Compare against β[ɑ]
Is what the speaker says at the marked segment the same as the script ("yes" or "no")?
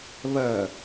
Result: no